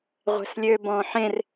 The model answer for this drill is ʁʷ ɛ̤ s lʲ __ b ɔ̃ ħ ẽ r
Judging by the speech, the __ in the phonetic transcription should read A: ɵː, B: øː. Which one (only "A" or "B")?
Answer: B